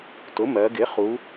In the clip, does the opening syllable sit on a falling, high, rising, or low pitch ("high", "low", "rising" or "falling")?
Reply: rising